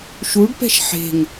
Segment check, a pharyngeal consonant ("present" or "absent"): present